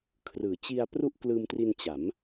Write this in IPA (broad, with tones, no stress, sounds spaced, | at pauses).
kʰ r ɯː˩˦ t͡ɕ i˧ a̯ p r u˥˩ ʔ k l ɯː˧ m t r i˧ n t͡ɕ a˩˦ m